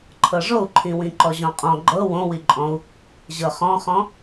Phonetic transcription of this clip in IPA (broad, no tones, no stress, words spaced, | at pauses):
ǃʰɤʐou̯ǃʰĩ wĩǃɔʑɔ̃qʼɔ̃ ɡ͡ǃɤ wõwiǃʼɔ̃u̯ | ʑɤχɔ̃χɔ̃